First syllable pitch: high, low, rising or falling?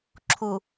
low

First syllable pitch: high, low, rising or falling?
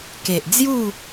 low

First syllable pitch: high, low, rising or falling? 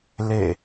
falling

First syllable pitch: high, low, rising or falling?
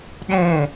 falling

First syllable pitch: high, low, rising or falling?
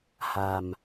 low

